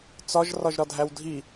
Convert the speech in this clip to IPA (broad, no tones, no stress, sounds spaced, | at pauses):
t͡s ɒ ʒ r ɒ ʒ ɾ ɒ dʱ æ w dʱ i